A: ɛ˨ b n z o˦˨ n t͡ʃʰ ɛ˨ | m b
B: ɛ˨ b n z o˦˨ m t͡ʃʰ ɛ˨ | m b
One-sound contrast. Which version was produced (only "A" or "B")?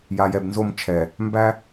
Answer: B